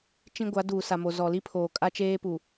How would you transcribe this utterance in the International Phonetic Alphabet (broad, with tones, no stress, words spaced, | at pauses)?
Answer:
t͡ʃĩ˦ ɡʷa˨˦duː˨sa˨ mo˨ zɔ˨li˦pʰoː˨ kʼa˦t͡ʃeː˦ pu˨